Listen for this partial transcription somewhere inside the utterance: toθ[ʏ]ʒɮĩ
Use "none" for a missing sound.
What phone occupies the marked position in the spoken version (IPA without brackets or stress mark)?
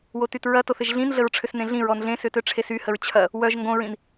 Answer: ɪ